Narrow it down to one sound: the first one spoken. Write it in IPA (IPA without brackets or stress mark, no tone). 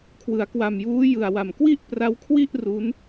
kʰ